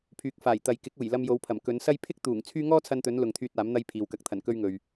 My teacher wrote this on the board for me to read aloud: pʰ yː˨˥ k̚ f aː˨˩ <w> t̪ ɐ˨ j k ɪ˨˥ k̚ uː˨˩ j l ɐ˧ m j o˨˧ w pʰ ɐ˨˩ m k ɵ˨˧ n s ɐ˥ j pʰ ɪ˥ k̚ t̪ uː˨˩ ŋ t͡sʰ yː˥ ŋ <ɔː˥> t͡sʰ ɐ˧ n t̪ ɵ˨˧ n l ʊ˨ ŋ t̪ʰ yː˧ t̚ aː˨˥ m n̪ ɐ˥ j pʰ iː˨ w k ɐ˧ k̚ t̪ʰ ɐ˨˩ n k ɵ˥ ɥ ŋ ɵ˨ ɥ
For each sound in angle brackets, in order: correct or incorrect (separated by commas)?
incorrect, correct